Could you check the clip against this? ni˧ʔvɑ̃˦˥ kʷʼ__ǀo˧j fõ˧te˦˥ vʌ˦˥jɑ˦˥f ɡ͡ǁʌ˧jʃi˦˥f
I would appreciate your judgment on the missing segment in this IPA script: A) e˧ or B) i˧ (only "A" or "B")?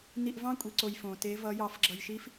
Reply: B